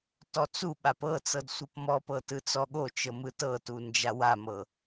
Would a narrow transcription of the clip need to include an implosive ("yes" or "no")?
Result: yes